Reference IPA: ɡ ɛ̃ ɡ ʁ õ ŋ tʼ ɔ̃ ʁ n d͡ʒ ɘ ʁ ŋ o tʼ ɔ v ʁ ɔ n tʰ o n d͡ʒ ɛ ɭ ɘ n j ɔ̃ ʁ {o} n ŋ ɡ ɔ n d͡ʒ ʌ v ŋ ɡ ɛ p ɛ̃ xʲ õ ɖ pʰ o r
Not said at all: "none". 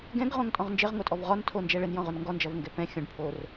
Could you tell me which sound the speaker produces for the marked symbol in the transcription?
o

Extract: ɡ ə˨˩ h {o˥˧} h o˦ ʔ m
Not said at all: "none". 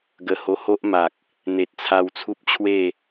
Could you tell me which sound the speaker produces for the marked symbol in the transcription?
o˧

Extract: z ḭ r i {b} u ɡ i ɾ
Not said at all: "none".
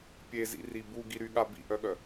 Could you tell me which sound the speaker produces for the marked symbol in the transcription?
b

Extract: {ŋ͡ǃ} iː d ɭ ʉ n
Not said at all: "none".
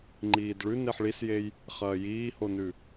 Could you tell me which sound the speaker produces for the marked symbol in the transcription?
ŋ͡ǃ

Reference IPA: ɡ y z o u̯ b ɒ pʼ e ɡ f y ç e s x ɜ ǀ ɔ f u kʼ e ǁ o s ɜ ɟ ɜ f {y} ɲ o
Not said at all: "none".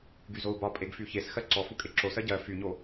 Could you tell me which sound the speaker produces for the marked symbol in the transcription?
y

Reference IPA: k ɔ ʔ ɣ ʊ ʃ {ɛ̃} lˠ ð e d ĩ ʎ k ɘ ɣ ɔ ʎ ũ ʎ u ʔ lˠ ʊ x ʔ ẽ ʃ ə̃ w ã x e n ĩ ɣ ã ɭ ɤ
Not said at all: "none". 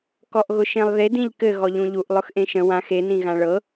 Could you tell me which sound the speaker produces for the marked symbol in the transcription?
ẽ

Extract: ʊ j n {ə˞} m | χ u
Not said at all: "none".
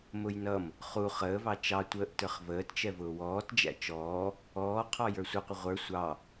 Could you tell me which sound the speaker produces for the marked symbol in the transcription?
ʌ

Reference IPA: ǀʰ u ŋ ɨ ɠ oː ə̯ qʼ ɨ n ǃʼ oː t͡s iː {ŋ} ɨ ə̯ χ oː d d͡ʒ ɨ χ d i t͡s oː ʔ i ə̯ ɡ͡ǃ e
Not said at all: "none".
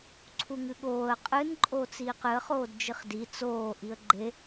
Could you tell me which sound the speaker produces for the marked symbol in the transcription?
q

